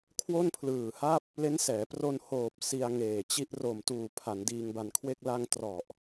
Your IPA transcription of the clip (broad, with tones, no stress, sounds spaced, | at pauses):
kʰ w o˥˩ n pʰ l ɯː˨˩ h a˥˩ p̚ | l e˦˥ n s ɛː˩˦ p r o˧ n h oː˨˩ p̚ s i˧ a̯ ŋ eː˨˩ t͡ɕ i˦˥ ʔ r o˨˩ m t uː˨˩ pʰ a˩˦ n d iː˧ ŋ b a˧ n kʰ w e˥˩ k̚ l a˧ ŋ t r ɔ˨˩ ʔ